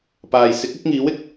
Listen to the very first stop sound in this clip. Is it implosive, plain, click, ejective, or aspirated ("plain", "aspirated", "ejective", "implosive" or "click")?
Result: plain